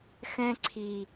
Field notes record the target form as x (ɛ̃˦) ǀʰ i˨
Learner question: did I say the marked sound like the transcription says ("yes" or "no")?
yes